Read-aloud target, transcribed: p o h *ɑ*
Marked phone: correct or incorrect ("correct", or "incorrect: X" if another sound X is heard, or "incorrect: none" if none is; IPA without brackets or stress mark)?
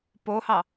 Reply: correct